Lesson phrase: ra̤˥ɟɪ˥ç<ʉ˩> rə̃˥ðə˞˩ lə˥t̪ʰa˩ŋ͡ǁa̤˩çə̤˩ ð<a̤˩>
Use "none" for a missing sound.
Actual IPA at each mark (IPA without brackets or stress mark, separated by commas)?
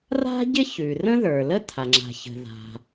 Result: ʉ˩, a̤˩